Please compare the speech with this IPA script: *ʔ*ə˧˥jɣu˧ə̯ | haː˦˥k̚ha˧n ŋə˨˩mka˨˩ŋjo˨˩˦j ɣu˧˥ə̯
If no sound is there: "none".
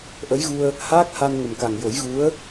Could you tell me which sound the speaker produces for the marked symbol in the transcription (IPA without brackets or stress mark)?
ʔ